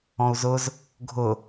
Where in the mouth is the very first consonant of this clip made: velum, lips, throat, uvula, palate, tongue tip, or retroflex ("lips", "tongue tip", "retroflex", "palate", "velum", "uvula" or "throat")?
tongue tip